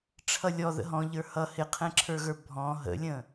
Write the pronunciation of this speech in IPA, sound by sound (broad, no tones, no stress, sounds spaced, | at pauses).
ʈ͡ʂʰ ʌ lʲ ɔ ð ə̰ ɦ ɔ̃ ʎ ə˞ h ʌ h ɪ qʰ ɛ̃ ǁʰ ə˞ ɣ ə˞ bʱ ɔ̃ ɦ ə̰ lʲ ə̃